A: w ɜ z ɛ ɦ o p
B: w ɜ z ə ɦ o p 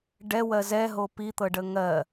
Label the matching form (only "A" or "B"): A